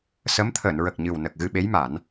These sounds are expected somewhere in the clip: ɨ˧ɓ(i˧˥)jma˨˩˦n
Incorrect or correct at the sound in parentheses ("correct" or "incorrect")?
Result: incorrect